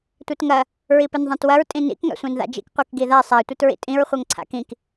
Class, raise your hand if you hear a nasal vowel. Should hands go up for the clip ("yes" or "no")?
yes